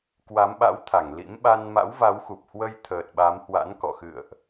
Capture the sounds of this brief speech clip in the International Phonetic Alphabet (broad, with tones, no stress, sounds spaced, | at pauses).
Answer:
k w a˨˦ m ɓ a̰˧˥ w t̪ʰ a˧˩ ŋ l ḭ˧˥ m ɓ a˧ n m a̰˧˥ w v a˨˦ w x u˨˩ p̚ h w ə˧ j t̪ʰ əː˨˩ t̚ ɓ a˨˦ m h w a̰˧˥ n k ɔ̰˧˨ x ɨ̰˧˨ ə̯ ʔ